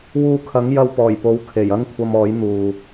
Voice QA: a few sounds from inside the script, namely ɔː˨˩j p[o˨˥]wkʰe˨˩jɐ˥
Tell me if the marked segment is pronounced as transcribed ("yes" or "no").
yes